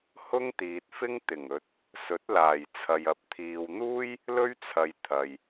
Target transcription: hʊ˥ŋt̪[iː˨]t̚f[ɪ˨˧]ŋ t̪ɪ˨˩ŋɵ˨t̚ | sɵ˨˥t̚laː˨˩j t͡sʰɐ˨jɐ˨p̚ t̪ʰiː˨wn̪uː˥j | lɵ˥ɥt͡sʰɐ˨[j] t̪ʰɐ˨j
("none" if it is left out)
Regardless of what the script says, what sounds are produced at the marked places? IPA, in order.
iː˨, ɪ˥, j

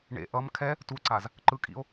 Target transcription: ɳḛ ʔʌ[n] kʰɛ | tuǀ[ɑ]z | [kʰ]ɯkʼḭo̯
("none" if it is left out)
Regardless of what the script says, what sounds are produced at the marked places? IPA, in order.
m, a, ǃ

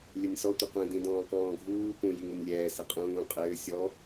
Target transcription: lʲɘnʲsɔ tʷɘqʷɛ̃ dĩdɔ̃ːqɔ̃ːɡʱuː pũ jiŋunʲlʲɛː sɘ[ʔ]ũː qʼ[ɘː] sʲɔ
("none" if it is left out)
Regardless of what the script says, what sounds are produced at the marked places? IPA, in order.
qʼ, ɘː

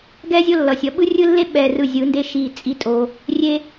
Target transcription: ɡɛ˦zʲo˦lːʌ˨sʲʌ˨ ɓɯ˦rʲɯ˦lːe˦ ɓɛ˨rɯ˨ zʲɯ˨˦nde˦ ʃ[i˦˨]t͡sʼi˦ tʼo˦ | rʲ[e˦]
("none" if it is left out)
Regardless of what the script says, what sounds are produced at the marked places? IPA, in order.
i˦˨, e˦

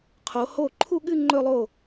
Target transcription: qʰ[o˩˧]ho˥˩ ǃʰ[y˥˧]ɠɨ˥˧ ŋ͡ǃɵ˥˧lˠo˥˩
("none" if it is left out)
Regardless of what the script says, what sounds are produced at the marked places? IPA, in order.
o˩˧, u˥˧

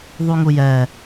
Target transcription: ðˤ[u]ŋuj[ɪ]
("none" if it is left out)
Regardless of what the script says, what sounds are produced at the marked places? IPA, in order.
u, ɛ

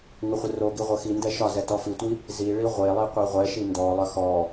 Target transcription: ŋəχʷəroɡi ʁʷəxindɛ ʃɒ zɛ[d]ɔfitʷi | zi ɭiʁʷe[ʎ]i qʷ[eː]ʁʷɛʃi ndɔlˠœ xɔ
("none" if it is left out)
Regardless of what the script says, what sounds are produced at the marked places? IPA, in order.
t, lˠ, e

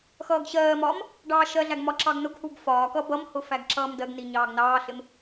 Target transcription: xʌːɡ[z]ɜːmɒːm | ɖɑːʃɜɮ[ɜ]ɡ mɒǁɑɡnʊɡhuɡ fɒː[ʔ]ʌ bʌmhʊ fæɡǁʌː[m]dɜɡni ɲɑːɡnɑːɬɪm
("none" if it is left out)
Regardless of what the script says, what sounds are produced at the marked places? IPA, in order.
ɕ, æ, k, m

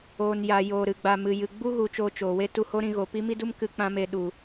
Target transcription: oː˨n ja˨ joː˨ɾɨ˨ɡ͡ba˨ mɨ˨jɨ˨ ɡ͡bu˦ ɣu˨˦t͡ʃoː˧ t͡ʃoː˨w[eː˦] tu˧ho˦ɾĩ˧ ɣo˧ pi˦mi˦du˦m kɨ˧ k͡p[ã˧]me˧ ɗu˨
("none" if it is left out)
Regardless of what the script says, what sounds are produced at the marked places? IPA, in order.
e˦, ã˦

